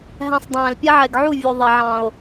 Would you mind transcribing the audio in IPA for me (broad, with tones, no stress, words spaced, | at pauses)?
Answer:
ɦæ̃˦sˤ dˤæ̃ː˨lpʲɛ˦ʕɛ˨ɡʕu˦˨ vʲu˨ ðˤɛ˨ʕɑ̃˨o̯